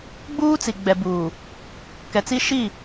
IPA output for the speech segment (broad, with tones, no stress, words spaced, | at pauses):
ɡ͡buː˦t͡si˨ ɡ͡bɛ˨ buː˨ | kɛ˨t͡si˦ ʃi˦˨